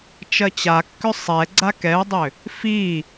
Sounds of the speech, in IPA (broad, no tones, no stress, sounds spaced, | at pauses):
t͡ʃ ɜ t͡ɕ a kː ʏ sˤ ɛ ɡ͡ǀ a k ɛ u̯ dˤ ʏ | f i